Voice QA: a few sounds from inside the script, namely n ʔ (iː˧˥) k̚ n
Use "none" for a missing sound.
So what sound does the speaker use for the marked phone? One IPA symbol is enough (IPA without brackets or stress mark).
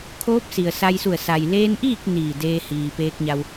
iː˥˨